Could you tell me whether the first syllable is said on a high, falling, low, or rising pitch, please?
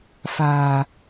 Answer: low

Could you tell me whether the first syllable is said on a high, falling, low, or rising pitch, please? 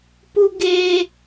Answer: high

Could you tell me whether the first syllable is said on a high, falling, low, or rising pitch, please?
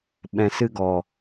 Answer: low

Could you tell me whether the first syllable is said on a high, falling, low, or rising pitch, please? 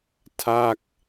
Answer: falling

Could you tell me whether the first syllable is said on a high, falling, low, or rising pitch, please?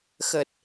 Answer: low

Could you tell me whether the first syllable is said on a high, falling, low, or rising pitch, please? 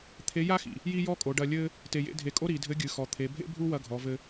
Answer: rising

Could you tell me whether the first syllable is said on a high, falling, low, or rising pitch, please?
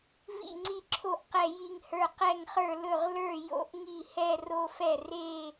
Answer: falling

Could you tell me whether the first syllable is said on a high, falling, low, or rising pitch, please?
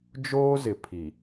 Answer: high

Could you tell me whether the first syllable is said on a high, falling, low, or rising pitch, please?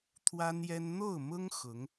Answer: high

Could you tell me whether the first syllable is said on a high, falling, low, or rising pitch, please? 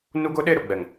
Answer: high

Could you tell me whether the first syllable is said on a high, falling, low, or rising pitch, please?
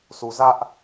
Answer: low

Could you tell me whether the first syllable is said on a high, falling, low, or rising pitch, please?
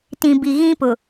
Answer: low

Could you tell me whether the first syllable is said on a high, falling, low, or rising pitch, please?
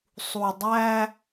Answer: low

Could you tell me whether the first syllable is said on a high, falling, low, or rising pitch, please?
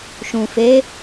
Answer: low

